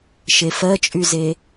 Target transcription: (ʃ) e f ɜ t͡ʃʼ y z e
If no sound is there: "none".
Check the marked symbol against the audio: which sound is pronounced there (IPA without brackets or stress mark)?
ʃ